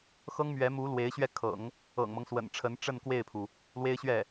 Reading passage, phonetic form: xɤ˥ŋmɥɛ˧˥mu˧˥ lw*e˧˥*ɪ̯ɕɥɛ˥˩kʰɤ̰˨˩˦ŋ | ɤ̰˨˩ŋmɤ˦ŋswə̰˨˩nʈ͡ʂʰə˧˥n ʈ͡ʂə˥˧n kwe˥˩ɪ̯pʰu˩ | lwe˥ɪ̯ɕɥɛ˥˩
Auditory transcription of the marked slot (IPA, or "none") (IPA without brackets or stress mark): e˧˥